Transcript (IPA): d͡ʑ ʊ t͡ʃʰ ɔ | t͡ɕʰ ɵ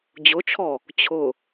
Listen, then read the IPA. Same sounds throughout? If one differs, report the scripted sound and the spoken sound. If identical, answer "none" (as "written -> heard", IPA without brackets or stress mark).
ɵ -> ʊ